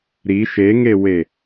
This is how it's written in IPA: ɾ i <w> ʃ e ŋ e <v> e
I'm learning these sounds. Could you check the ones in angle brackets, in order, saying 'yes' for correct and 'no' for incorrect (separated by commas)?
no, no